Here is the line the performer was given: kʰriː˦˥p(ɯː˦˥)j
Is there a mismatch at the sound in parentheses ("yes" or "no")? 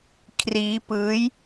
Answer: no